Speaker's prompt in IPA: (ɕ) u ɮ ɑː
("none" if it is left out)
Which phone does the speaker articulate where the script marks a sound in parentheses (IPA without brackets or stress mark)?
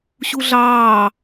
ɕ